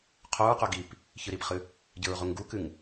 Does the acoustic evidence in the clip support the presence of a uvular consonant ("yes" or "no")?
yes